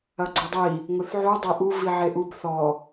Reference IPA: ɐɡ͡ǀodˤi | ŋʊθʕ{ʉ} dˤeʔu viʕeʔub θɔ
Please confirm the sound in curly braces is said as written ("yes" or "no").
no